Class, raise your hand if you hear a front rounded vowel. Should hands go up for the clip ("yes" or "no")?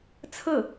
no